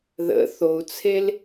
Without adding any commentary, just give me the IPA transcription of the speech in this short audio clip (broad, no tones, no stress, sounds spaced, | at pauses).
ð ə̰ θ o u̯ t͡sʰ e l